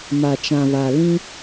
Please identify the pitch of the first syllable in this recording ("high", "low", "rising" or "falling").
low